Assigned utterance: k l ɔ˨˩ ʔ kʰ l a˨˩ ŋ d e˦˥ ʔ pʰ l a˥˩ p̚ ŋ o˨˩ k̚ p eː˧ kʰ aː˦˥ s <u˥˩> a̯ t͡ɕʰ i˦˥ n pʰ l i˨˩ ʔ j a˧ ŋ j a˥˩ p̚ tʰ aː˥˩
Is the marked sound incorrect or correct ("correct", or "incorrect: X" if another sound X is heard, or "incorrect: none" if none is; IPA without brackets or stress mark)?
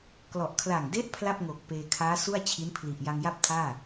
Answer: correct